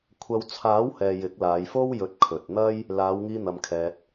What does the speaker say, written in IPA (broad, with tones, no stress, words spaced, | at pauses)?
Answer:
kʷʰɐ˧wt͡sʰaː˨˥whɛː˨ jɪ˨˥k̚laː˨˧jfo˥wjɵ˨˥t̚ kʰɵ˨t̚n̪ɐ˥j | laː˨˧wŋiː˧ n̪ɐ˧mkʰɛː˧t̚